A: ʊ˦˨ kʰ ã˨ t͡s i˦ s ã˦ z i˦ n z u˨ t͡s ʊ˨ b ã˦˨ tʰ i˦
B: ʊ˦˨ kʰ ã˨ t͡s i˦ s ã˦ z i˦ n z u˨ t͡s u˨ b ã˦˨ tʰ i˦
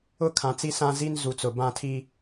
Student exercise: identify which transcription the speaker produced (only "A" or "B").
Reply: A